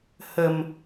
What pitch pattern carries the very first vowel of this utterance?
low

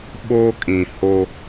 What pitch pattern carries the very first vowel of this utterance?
high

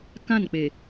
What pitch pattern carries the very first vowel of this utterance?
falling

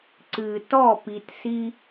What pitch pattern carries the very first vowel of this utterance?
low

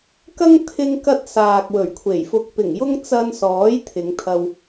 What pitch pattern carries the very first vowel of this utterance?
high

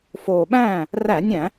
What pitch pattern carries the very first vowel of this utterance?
low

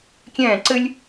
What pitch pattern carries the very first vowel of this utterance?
falling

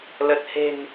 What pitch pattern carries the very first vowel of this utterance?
low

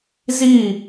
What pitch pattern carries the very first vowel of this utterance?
falling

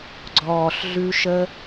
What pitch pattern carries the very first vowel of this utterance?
low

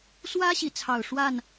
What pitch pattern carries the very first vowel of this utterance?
high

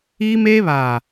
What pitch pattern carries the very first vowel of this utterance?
high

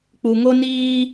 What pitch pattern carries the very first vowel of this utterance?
low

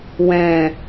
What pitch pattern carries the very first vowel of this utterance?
low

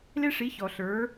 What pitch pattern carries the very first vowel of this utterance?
high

